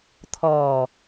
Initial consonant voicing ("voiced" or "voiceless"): voiceless